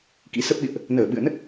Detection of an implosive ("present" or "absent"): present